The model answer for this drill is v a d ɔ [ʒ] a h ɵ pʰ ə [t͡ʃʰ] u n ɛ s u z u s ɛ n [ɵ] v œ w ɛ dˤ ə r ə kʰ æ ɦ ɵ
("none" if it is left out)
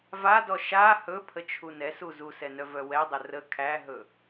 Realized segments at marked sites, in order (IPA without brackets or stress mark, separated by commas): ʃ, t͡ʃʰ, œ